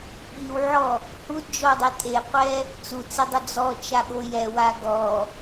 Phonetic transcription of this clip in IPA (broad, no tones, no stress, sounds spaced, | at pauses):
ɓ i w ʕ ɔ | h u d d͡ʒ ɔ dˤ e tʼ e qʷ ɛ | t͡s u t͡s e dˤ ʊ d͡z ɔ t͡ʃ a ɠ o j ɛ w a ɡ ɔ